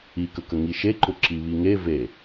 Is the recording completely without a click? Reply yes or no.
no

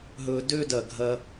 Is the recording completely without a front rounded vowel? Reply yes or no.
no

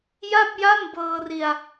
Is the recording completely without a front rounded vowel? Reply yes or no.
yes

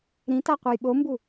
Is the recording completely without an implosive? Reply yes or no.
no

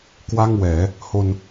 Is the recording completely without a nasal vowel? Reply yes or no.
yes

